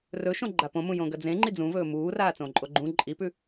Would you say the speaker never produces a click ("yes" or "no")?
no